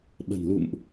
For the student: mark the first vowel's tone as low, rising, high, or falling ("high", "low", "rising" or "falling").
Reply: low